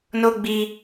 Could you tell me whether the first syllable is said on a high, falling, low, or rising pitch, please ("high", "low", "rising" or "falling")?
high